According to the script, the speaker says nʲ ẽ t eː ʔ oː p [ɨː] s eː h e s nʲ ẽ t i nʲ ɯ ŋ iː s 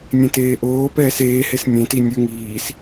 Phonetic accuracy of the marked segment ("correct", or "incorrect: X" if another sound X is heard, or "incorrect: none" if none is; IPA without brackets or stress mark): incorrect: ɛː